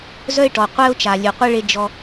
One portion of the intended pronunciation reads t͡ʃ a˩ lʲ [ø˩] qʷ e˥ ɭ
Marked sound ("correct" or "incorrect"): correct